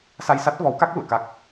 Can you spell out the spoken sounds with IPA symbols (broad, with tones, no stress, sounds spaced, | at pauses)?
s a˧ j s a˦˥ t̚ v ɔ˨˦ w k a˦˥ k̚ l ṵ˧˨ ə̯ k a˦˥ k̚